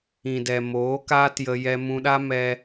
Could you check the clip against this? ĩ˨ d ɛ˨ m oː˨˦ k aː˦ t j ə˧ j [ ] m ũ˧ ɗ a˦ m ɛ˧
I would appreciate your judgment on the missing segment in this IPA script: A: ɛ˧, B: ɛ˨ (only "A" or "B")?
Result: A